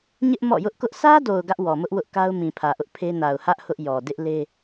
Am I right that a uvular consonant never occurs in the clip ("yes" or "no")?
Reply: yes